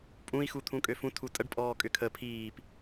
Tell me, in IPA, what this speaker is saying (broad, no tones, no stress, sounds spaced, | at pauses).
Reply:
pʼ ũ i̯ x u t̪ʰ ũ kʼ ø f ũ tʰ u tʼ ə ɖ pʼ ɔː kʼ ʏ kʰ ə pʰ iː p